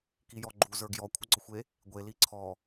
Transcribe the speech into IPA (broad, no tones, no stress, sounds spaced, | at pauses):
k i j ɔ ɡ͡ǃ u z ə˞ ɡ j ɔ kʷʰ ə ɡ͡ǀ ɔ xʷ e | ɡʷ e l i ǀʰ ɔ